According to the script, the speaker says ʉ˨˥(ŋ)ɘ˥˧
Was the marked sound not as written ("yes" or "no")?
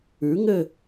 no